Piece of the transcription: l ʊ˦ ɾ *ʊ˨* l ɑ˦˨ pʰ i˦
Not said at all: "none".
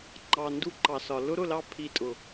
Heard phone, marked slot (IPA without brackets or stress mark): ʊ˦˨